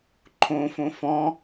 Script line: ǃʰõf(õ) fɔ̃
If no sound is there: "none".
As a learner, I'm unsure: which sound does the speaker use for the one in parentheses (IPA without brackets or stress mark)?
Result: õ